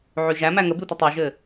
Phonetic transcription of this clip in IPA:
ʕ y ʒ æ m æ ŋ ə b y tʷ ə tˤ y ʒ ɘ

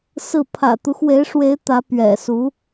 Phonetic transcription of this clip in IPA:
s ɹ̩˥˩ pʰ ä̰˨˩ t̪ u˦ x w e˧˥ ɪ̯ ʂ w e˧˥ ɪ̯ t̪ ä˧˥ p ɥ ɛ̰˨˩ s u˧˥

